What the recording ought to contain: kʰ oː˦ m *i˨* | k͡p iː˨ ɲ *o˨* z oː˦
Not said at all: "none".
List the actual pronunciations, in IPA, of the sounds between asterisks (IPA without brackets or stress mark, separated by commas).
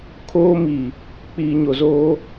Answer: i˨, o˨